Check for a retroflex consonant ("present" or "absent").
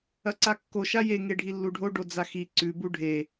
present